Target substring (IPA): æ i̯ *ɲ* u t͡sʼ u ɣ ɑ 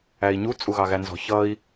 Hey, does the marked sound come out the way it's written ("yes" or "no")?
yes